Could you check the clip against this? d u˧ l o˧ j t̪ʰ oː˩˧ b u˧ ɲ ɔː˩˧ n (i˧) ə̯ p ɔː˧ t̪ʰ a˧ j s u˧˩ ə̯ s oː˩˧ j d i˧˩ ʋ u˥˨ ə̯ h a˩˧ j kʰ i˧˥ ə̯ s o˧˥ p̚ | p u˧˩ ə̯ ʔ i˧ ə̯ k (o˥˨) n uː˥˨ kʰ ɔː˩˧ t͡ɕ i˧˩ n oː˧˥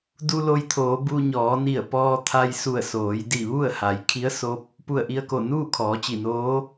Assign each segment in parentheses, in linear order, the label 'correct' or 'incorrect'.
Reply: incorrect: i˧˩, incorrect: o˧˩

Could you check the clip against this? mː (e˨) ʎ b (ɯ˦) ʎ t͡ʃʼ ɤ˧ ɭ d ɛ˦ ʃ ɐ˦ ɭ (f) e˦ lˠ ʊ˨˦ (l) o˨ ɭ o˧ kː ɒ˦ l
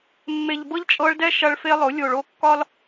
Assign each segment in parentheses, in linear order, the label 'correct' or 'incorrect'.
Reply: correct, incorrect: ɤ˦, correct, incorrect: lʲ

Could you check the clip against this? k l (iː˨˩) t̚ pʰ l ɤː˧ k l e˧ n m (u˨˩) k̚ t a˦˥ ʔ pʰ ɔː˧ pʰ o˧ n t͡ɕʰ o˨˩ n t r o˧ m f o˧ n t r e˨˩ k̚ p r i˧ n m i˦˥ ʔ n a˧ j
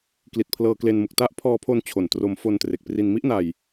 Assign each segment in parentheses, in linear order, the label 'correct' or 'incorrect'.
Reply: incorrect: i˨˩, correct

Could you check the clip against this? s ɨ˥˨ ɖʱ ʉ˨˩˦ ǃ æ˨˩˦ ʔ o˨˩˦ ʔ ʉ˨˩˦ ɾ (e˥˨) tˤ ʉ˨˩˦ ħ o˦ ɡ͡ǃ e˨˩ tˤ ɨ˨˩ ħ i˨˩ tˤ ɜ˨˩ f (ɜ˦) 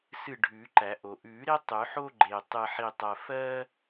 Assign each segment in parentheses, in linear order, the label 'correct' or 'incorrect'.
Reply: incorrect: e˦, correct

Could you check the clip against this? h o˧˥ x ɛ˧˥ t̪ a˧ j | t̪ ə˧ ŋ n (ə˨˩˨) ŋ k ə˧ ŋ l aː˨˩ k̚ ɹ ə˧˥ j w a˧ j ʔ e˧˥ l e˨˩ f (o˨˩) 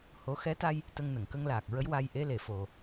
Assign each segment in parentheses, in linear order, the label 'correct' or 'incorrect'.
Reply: correct, correct

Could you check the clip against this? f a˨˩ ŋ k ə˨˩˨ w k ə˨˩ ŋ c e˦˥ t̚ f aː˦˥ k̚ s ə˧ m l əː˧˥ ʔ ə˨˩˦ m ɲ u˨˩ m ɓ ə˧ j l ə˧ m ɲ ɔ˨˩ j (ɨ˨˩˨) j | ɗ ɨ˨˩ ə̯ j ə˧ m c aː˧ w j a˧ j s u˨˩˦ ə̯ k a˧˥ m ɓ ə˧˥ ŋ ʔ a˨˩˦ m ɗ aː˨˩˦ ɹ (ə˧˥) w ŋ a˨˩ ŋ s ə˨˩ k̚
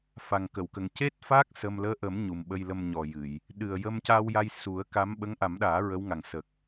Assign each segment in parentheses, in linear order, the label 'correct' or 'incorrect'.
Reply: correct, correct

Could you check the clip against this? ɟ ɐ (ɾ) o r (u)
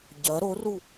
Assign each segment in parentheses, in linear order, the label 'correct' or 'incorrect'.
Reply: correct, correct

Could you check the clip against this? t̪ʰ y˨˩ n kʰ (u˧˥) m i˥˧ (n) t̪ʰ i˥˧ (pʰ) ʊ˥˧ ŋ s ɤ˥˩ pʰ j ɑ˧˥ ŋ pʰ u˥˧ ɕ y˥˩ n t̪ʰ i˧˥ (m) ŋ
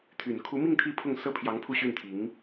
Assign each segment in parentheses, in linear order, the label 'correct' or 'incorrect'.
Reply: correct, incorrect: ŋ, correct, incorrect: none

